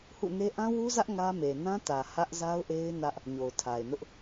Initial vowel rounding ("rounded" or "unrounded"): rounded